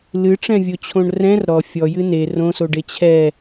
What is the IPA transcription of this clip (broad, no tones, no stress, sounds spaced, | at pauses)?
l ɨ ʈ͡ʂ ɛ̃ vʲ o t͡ɕʰ õ ɳ r ɛ̃ r ɾ ɔ fʲ ɔ j ɨ n e r õ s o ɖ e t͡ɕʰ ɛ